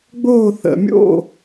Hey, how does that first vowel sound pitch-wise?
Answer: falling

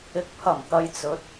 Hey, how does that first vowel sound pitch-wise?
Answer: low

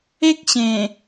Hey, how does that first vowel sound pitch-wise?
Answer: high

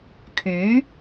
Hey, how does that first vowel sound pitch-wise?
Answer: rising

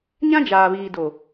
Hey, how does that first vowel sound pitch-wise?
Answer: high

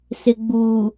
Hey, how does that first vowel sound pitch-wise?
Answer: low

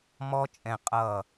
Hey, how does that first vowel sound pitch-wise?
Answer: high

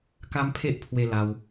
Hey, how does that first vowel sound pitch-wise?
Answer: high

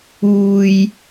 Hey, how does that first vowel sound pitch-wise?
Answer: low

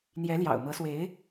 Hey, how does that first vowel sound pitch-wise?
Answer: rising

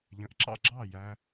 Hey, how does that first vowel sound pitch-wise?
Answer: low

